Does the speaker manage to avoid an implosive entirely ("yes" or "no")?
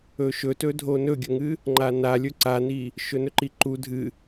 yes